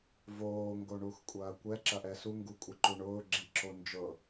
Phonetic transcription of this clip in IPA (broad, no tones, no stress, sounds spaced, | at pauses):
v oː ŋ ɡ o ɳ u x kʷʼ ɐː kʷ ɛ ǁ ɐ ʔ ɛ s u ŋ ɡ u kʷʼ ə ǃ u ɳ ʊː ɡ͡ǁ i ǁ o n d͡ʒ ɤ